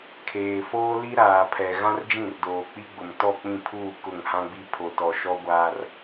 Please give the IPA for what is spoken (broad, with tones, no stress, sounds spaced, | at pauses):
kʰ eː˨ f oː˦ l i˦ ɾ aː˨ pʰ ɛ˨ ɣ ã˦ r d͡ʒ ĩ˦˨ r d oː˨ k͡p i˦ ɡ͡b ʊ˨ m t ɔ˦˨ k͡p ĩ˦˨ pʰ uː˦˨ k ʊ˦˨ ŋ h ã˦ ɡ͡b i˦ pʰ o˨ t ɔ˨ ʃ ɔ˦ ɡʷ aː˦ r